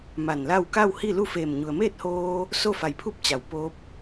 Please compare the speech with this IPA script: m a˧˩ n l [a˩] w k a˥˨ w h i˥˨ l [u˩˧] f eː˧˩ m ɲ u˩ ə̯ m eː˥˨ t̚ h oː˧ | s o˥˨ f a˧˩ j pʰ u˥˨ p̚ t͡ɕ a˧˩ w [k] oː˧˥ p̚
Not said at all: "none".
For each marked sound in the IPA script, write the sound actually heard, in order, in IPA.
a˥˨, u˥˨, p

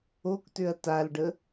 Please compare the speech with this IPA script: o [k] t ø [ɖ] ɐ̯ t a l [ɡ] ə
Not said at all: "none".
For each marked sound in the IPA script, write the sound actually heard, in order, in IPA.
k, none, ɖ

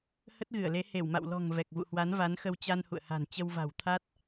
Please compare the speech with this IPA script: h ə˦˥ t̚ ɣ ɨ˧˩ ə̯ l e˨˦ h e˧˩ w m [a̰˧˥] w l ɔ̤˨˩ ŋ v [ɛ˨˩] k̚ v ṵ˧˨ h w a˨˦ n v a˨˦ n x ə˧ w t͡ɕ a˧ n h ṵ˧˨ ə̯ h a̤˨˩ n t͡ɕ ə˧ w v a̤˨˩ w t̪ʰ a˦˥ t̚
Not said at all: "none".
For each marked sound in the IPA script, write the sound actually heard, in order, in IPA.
a̰˧˨, ɛ˨˩

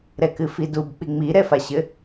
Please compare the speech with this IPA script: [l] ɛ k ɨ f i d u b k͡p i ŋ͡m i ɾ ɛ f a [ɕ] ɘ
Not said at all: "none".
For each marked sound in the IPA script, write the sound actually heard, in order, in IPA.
ɾ, ɕ

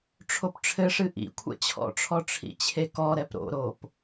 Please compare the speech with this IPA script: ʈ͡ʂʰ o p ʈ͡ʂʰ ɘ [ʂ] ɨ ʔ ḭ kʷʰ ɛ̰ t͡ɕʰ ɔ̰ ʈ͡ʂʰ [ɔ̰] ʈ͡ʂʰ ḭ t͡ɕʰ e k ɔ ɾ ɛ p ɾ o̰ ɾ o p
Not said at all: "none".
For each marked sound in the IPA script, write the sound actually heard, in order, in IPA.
ʂ, ɔ

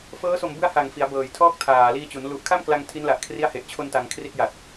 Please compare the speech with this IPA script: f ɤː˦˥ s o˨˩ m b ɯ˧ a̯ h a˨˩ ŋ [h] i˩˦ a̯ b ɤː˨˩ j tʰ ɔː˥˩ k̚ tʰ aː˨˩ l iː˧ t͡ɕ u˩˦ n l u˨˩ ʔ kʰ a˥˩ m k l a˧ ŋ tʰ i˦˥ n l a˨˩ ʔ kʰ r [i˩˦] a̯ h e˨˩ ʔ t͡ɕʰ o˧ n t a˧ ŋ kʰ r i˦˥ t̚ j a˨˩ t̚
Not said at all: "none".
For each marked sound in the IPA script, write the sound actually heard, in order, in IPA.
f, i˦˥

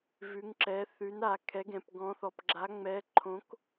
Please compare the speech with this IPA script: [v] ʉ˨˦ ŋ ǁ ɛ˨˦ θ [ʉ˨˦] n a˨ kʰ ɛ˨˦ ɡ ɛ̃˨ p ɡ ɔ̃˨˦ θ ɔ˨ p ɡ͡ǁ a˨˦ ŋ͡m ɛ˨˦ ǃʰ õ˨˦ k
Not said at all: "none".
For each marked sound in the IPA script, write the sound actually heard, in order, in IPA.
v, ʉ˨˦

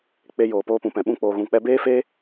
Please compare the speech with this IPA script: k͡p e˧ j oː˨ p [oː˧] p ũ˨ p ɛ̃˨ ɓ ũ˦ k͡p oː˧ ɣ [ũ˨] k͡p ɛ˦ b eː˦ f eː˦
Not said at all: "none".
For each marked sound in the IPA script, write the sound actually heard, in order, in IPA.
oː˧, ũ˧

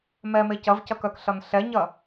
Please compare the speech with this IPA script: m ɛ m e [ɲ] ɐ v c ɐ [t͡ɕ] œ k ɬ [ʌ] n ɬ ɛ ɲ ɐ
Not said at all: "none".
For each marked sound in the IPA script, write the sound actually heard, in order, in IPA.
c, k, ʌ

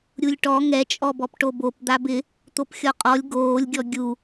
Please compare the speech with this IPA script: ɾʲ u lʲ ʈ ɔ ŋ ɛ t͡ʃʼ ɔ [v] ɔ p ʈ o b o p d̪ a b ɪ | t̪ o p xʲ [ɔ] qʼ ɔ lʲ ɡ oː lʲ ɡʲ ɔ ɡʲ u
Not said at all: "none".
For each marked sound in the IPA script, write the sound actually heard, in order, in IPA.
b, ɔ

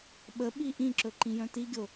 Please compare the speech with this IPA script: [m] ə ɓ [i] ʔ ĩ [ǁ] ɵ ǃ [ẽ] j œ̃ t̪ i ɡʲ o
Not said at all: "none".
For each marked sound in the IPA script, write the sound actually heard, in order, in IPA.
ɓ, i, ǁ, ĩ

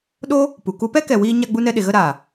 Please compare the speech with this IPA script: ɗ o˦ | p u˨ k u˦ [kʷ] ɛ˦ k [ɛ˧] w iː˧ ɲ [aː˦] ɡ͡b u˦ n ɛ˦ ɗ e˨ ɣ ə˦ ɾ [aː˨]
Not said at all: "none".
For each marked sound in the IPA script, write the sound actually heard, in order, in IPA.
p, ɛ˨, a˦, aː˨

